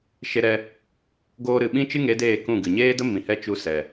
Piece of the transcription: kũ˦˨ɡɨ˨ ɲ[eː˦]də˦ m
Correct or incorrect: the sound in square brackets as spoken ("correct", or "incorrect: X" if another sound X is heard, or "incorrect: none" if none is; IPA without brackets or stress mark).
correct